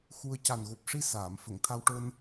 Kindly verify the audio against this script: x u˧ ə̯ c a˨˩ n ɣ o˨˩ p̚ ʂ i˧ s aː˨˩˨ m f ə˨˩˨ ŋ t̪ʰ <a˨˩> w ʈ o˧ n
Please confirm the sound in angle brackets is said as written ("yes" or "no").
no